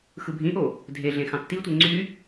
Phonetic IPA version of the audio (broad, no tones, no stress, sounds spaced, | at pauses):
x ɯ bʱ ĩ ʔ o | dʱ e ɮ ẽ x ɑ̃ tː i tʷ e ŋ͡ǀ y